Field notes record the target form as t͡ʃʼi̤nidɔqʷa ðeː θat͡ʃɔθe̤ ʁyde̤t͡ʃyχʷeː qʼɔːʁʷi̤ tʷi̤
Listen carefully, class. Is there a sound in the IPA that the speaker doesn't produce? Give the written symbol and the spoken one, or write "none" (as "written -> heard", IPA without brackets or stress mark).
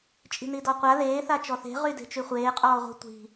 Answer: none